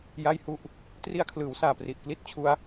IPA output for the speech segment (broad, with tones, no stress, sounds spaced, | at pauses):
j a˥˩ j h u˥˩ ʔ | t r i˧ a̯ kʰ l ɯː˩˦ w s aː˨˩ p r i˨˩ ʔ k l i˦˥ t̚ t͡ɕʰ u˦˥ a̯